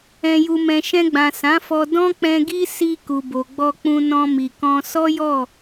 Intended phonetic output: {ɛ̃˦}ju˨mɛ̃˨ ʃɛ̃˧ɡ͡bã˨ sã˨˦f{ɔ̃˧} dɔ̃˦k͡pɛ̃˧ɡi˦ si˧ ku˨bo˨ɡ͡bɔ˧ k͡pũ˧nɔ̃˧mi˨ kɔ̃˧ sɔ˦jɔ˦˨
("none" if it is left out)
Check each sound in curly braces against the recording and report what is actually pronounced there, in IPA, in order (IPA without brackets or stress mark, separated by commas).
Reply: ɛ̃˨, ɔ˧